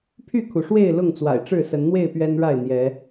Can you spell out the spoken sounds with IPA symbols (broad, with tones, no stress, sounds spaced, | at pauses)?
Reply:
pʰ y˥˨ kʰ u˩ ʂ w e˥˨ ɪ̯ l ʊ˥˨ ŋ t͡s w a̰˨˩ ɪ̯ ʈ͡ʂ ɻ̩˥˨ s ə˨˦ n n̪ w e˥˨ ɪ̯ p ɥ ɛ˦ n ɻ a˥˨ ɪ̯ n̪ j ɛ˨˦